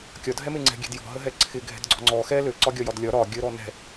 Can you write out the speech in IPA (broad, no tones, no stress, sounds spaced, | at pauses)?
kʲ ɒ dʱ ɛ m e ŋ͡ǀ ɛ̤ ɡʲ ɛ̤ d j ɔ̤ ɦ ə ɦ ɛ ǀʰ ɪ ɡʱ ɛ̤ d ɡ͡ǀ ɔ̤ ŋ͡ǀ ɔ x ɛ l ø ǀ ɒ ɡʲ ɒ j ɒ d lʲ ɒ ɾ ɒ ɡʲ ə ɾ ɔ n ɛ̤